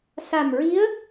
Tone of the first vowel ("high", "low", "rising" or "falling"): low